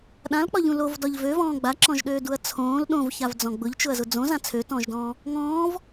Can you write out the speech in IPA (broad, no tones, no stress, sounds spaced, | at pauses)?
ɗ ã l k͡p ɒ ʎ ũ l o v d ɒ ʎ v ø v ɔ̃ː ɡ͡b a ǁ ɔ̃ ʒ ɗ øː d u ɐ̯ t͡sʰ õː l ɗ õ v ç a v d͡z ɔ̃ ɡ͡b ʊ ʎ t͡ʃ ʊ ɐ̯ z ʊ d͡z õ z ã t͡sʰ ø t ɔ̃ː ʒ d ɔ̃ː | ŋ ɔ̃ː v